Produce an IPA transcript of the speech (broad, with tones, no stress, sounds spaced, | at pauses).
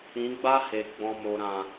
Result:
ĩ˨˦ ɡ͡b a˦ h e˨ ɡ͡b ɔ̃˨ m o˨ ɾ ã˨